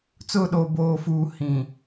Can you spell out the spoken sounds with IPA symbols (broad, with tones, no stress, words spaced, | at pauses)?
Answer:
t͡sʊ˦˨ɗo˨ boː˨fuː˨ hĩ˨